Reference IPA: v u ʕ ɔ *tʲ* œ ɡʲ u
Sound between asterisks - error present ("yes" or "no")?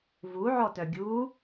yes